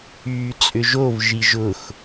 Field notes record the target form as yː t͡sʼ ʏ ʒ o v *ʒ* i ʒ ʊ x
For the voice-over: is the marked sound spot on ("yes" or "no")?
yes